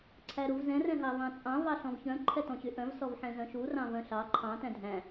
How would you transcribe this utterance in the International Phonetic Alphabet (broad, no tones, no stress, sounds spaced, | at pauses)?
ǀʰ æ ɾ u v z ɛ̃ r ɛ̃ ɦ ɑ v ɑ̃ t͡sʼ ɑ̃ v ɑ ɬ ɔ̃ v ç œ̃ ǃʰ ɛ t ɔ̃ ɕ y ʔ œ̃ v s ɔ v ħ ɛ̃ z œ̃ ʃ u r ɑ̃ v œ̃ ɬ ɑ ǃʰ ɑ̃ t æ̃ dʱ æ̃